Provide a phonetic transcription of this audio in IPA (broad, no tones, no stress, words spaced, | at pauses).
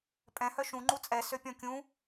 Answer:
pʼɛ̃hœ ʃũ ŋ͡ǃut͡sʼɛsø pʲɔ̃kʲũ